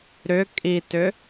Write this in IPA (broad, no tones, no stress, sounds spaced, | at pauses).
ɾ ʏ kʼ i t ʏ